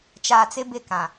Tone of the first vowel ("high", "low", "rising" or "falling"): low